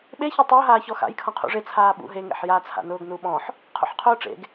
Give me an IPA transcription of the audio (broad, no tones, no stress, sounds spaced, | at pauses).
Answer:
ɓ e ç e tˤ ʊː ɦ aː ç ɔ x a̰ j kʰ ɔ̃ qʰ ṵ ʐ e t͡sʰ aː ɓ ṵ ɦ e ŋ ḛ ħ j a t͡sʰ a̰ n ʊː ɡ n u ɓ ɔ̃ ħ | qʰ ṵ ħ qʰ ʊː ʈ͡ʂ ḛ ɡ